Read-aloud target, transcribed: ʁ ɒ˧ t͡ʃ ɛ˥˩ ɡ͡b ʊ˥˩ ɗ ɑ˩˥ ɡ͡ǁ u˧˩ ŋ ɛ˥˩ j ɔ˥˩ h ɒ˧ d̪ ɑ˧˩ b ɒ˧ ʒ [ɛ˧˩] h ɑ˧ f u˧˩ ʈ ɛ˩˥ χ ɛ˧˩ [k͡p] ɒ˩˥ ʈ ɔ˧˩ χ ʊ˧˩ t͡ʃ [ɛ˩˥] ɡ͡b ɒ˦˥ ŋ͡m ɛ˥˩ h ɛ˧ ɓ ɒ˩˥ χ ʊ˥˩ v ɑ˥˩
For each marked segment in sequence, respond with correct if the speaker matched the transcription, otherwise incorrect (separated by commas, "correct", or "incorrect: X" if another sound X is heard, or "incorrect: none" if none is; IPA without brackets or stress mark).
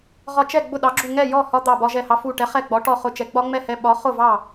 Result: correct, incorrect: ɡ͡b, correct